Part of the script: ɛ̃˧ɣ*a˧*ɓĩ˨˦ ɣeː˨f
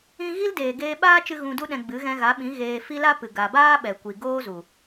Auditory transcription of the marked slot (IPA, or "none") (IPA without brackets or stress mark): a˨˦